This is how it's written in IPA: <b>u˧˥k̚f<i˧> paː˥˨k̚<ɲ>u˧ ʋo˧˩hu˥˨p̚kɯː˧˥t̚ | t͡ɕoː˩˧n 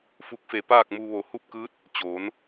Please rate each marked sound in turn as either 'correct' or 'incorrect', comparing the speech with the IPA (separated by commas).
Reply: incorrect, incorrect, incorrect